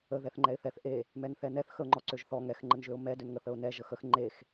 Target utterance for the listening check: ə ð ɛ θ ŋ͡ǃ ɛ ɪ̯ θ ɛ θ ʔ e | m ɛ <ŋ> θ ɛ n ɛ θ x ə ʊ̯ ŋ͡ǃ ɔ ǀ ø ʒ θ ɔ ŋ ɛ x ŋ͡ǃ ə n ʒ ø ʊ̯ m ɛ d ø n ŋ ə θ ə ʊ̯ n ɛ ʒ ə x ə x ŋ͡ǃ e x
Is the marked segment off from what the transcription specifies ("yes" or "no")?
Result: yes